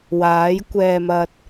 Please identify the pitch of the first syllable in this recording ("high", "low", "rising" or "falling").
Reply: rising